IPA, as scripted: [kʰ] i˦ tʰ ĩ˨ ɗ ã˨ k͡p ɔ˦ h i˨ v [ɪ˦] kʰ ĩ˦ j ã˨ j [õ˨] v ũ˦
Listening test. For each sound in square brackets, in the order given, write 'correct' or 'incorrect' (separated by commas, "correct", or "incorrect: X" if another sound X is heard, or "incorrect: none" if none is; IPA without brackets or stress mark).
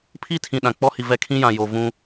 incorrect: pʰ, incorrect: ɛ˦, incorrect: o˨